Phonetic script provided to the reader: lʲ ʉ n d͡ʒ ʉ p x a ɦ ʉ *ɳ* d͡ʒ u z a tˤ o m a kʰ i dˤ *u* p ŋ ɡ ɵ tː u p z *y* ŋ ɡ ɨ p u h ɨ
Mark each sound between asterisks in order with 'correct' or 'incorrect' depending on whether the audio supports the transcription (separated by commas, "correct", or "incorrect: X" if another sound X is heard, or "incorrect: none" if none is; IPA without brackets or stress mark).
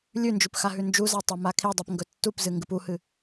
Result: incorrect: n, correct, incorrect: ɨ